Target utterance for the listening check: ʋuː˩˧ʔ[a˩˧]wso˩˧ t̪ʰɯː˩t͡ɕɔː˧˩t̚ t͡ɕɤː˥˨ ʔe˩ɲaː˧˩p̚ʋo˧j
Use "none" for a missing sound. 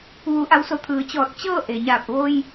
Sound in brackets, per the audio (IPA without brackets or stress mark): a˩˧